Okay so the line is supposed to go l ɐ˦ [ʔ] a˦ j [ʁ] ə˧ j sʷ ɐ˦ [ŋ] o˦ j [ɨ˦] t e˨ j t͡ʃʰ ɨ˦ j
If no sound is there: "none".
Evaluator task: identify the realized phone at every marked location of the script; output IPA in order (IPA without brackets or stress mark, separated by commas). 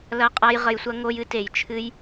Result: qʼ, ʁ, ŋ, ɨ˦